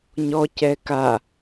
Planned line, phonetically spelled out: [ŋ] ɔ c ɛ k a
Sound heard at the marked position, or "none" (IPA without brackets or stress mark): ɲ